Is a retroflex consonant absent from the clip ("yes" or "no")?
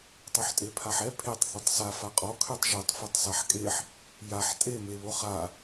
yes